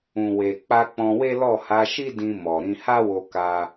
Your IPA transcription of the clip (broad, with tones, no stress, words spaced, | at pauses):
ũ˨we˨k͡pa˧ k͡pɔ̃˧we˦ lɔ˦˨ ha˨˦ʃi˦dĩ˧ mɔ˨ɾĩ˧ ha˦wo˧ka˧